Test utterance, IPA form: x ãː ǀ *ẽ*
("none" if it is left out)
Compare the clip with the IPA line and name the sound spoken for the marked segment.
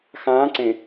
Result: ẽ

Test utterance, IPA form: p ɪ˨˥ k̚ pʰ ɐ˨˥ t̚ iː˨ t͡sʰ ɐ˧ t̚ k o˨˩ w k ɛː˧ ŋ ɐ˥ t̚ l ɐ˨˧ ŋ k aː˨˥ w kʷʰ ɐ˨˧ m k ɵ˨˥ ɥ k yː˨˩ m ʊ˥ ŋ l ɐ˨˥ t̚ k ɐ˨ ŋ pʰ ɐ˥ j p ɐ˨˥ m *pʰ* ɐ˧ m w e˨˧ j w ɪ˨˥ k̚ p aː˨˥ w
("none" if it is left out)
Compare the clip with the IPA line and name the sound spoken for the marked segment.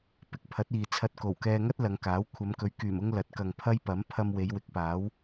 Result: pʰ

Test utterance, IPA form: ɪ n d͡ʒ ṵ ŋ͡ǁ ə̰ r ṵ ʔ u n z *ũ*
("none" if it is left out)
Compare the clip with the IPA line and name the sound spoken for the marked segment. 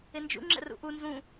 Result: ũ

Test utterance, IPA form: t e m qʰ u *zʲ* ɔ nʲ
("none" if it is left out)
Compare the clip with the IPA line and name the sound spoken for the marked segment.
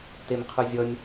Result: zʲ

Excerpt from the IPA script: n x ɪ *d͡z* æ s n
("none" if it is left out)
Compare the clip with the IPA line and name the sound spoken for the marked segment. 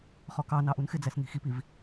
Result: d͡z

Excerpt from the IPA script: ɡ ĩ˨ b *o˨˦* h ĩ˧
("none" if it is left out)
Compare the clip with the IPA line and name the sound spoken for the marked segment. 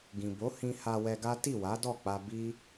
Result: o˨˦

